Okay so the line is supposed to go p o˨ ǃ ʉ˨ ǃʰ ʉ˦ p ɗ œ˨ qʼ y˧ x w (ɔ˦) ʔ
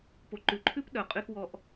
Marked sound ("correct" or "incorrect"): incorrect